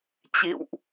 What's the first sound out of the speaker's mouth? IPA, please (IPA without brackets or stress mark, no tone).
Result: t͡ɕ